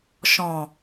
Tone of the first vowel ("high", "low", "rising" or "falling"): low